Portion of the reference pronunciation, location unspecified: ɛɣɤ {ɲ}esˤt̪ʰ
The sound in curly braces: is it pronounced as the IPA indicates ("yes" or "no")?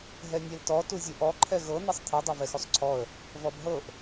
no